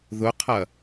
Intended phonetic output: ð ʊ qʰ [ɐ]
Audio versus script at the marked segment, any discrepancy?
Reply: no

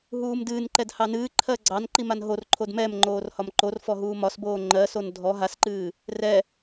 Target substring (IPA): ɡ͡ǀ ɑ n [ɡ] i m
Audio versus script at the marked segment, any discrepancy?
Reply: yes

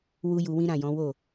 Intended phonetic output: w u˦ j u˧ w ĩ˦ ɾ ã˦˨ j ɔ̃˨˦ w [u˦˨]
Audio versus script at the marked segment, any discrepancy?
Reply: yes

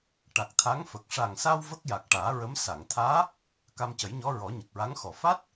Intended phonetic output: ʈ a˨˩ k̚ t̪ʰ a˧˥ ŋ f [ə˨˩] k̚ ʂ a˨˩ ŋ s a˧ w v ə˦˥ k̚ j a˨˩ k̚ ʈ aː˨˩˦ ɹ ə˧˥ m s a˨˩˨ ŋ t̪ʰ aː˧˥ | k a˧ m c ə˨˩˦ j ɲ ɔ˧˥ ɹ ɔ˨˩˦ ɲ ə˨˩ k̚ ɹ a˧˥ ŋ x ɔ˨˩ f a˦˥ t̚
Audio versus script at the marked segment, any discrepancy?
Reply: no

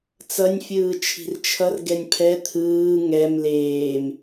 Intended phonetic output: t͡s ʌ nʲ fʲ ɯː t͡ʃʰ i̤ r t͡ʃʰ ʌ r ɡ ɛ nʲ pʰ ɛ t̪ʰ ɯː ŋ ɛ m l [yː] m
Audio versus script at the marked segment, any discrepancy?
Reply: yes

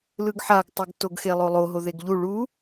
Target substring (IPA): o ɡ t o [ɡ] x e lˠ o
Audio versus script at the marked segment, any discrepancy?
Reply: no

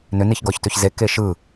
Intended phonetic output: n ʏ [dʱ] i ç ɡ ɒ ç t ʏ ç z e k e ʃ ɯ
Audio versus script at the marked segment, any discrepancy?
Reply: yes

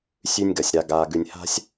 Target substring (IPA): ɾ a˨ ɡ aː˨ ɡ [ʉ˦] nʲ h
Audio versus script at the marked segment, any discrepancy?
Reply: yes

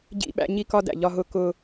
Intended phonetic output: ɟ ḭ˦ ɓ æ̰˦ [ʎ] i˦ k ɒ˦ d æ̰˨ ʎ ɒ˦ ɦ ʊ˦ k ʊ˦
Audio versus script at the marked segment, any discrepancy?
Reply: yes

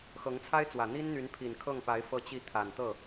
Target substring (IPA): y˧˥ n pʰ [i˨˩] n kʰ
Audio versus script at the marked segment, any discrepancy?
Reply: no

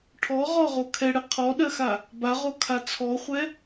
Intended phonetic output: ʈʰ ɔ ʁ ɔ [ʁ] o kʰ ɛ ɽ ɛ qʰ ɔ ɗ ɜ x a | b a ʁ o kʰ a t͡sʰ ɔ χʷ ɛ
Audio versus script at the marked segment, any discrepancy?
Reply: no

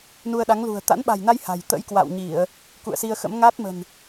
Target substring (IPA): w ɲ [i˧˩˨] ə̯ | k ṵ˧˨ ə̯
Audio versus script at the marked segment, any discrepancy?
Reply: no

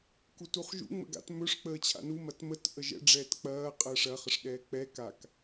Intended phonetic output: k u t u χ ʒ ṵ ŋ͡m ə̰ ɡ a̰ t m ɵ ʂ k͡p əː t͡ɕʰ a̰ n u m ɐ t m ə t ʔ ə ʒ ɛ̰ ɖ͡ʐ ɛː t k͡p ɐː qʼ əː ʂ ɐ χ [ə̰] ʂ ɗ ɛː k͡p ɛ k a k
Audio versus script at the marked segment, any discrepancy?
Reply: yes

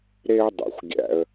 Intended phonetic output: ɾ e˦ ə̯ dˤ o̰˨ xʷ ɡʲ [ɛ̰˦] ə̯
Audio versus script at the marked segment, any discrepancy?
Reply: yes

